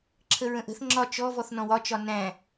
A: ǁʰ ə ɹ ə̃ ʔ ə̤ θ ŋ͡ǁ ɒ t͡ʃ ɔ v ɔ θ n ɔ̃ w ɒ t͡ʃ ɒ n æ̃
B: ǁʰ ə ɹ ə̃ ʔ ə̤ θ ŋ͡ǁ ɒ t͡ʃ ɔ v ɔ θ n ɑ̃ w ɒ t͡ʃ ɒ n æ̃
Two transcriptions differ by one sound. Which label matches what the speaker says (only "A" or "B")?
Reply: A